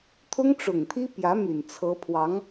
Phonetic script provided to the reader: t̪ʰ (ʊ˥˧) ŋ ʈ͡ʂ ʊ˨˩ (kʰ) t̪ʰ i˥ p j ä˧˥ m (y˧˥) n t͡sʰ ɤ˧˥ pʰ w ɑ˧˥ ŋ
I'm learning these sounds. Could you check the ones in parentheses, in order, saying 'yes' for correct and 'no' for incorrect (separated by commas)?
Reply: no, no, no